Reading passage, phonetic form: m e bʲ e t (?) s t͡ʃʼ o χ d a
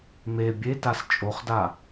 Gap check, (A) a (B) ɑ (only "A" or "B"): A